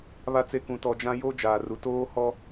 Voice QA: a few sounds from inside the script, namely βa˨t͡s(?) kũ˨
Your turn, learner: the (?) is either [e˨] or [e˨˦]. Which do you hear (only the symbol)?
e˨